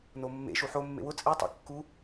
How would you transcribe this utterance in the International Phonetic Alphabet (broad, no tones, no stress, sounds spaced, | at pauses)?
n o mː ḛ ʃ u ħ o mː ḛ w ʊ t͡sʼ e tˤ ḛ kː u